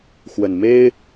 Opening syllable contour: low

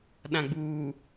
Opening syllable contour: low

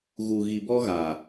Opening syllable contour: low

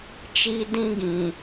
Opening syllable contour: high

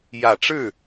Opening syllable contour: low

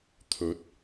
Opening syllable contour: rising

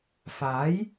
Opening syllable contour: rising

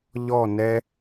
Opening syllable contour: falling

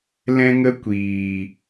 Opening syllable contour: high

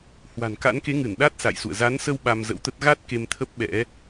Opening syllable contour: low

